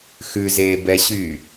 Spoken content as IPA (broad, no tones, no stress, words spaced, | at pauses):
xʉzeːbɛɕyː